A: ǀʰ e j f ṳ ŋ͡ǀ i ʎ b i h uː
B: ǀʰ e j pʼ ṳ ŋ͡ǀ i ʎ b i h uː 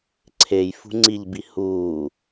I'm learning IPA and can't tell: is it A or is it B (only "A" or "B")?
A